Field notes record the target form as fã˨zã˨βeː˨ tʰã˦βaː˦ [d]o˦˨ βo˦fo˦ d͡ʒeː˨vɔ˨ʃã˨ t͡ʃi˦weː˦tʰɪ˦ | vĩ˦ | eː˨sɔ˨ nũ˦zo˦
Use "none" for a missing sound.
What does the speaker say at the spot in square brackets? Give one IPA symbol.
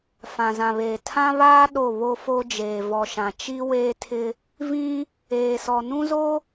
ɗ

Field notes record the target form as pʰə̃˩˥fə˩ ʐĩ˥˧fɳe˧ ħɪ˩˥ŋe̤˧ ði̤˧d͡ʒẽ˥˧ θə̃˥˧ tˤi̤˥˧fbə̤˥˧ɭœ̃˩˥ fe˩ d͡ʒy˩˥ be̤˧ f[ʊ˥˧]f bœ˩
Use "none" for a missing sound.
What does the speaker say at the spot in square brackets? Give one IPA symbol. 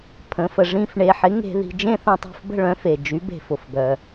ʊ˩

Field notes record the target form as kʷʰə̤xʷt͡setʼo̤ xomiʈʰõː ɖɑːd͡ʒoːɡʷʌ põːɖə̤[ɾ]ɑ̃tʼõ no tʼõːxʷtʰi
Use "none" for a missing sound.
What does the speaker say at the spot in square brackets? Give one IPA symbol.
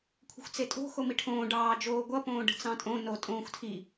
t͡s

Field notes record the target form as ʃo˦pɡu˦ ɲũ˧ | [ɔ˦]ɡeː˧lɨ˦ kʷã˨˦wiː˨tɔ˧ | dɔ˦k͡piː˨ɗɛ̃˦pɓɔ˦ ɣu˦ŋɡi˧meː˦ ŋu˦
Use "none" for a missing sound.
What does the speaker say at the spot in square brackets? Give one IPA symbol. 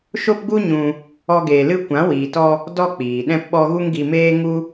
ɔ˦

